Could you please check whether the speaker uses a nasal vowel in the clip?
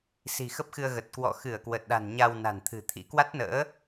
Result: no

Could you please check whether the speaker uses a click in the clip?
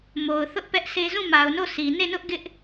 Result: no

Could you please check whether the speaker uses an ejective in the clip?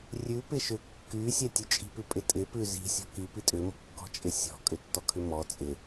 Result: yes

